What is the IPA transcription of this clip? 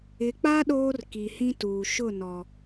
ɪ˨ k͡p a˦ ɗ oː˦ r k i˨ h ĩ˦ t uː˨ ʃ ʊ˦˨ n ɔ˨

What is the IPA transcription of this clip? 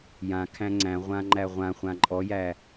j ã kʰ æ̃ ŋ͡ǀ æ̃ ʁʷ ã ŋ͡ǃ æ ʁʷ ã χʷ ã ǃʼ ɔ j æ

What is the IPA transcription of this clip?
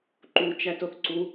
ǃ u t͡ʃ æ t o θ ǀ u

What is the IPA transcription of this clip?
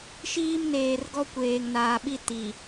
ʃ iː˦ m n eː˨ r ɡ ɔ˦ kʷ eː˨ ŋ n aː˨ ɓ i˦ t i˨

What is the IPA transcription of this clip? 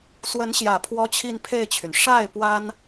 s w ə˧˥ n ɕ j ä˨˩ pʰ w ɔ˥ t͡ɕʰ i˥˧ n pʰ e˥˩ ɪ̯ t͡ɕʰ y˩ n ʂ a˥˩ ɪ̯ p w a˥ n

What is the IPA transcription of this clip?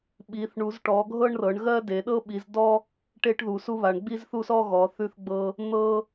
ɓ i˨˦ θ ɳ u˨˦ z ʈ ɔ˨˦ ɡʱ ɤ˥ ɳ r ɤ˨˦ ɳ ɣ ɜ˥ d e˨˦ ɗ ɤ˥ ɓ i˨˦ z d ɔ˥ | ʈ e˥ ʈ ð u˨˦ s u˥ β a˨˦ ɳ ɡ͡b i˥ z θ u˥ s ɔ˥ ɣ ɔ˨˦ θ ʉ˥ θ ɡ͡b ɤ˥ | n̪ ɤ˥

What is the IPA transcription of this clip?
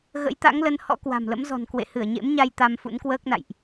ɣ ə̰˧˥ j t̪ a̰˧˥ ŋ l ə˧ n h ɔ̰˧˥ k w a̤˨˩ m l ə̰˧˥ m z ɔ̤˨˩ n k w ḛ˧˨ h ɨ˧˩ ə̯ ɲ ḛ˧˥ m ɲ a˧ j t̪ a˧ m f ṵ˧˥ n k w əː˦˥ k̚ n a̰˧˨ j ʔ

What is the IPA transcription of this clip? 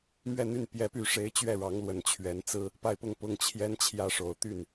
m ɥ ɛ˥˧ n̪ y˥˩ n p j ɛ˧˥ p y˧˥ ʂ e˧˥ ɪ̯ t͡ɕ ɥ ɛ˥˩ ɻ ɑ˧˥ ŋ l w ə˨˩ n t͡ɕʰ ɥ ɛ˧˥ n t͡s ɹ̩˥ | p a˥˧ ɪ̯ p ʊ˥˧ ŋ p ʊ˥˩ ŋ t͡ɕʰ j ɛ˥ n t͡ɕʰ j ä˥ ʂ o˨˩ ʊ̯ t̪ y˥˩ n

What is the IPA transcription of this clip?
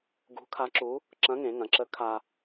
ɡ ṳ˧˥ kʰ a˧˥ ǁ u˧˥ | ǁ ɐ̃˧˥ ŋ ẽ˩˧ ŋ ɐ̃˩˧ ǁ ə˧˥ kʰ a˧

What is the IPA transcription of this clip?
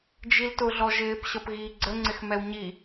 d͡ʒ i l t ʊ ɮ ɔ ʒ ɪː p ɕ ʌ p ɣ iː ɡ͡ǀ ə ŋ͡ǀ ɪ x m ɛ w ɲ i

